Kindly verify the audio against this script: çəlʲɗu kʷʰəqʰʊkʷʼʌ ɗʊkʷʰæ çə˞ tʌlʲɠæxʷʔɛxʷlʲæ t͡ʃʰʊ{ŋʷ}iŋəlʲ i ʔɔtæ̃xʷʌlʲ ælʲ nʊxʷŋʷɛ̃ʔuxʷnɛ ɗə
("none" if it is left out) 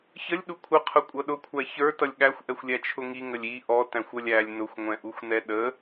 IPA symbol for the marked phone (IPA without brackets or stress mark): ŋ